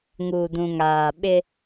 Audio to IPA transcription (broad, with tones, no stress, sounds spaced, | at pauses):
ŋ uː˨ d ũ˨ ŋ aː˨ ɓ ɪ˦